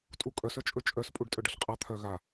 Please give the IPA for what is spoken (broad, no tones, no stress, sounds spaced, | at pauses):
tʼ u kʼ œ s œ t͡ʃʼ ɵ t͡ʃʼ œ s pʼ u ɖ tʼ œ ɖ ʌ ɬ qʼ a t̪ʰ œ ɣ a